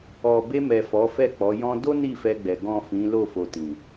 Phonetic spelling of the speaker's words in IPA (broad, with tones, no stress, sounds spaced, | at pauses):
ɔ˨ b e˧ m ɛ˨ f ɔ˨˦ f ɛ˦˨ k͡p ɔ˨˦ j ɔ̃˧ d o˦ n i˦˨ f ɛ˧ ɡ͡b ɛ˨ ɡ ɔ̃˨ f ĩ˨˦ l o˦˨ f o˨ t ĩ˨